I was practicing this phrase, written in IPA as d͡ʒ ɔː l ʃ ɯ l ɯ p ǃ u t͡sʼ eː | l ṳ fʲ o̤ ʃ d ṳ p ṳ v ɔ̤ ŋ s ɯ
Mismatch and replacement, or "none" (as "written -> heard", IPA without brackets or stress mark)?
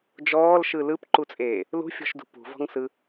o̤ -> ɔ̤